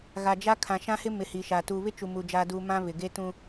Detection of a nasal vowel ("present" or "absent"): present